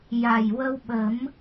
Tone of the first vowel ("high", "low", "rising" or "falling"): low